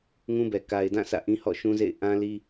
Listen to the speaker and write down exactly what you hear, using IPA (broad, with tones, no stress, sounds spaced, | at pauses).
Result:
ŋ ũ˦ b ɛ˨ k a˨ ɪ̯ d ã˦˨ sʰ ä̰˦˨ ʔ ĩ˦ h ɔ̰˦˨ ʃ ũ˦ z ḛ˦˨ ɪ̯ ʔ ã˦ l i˦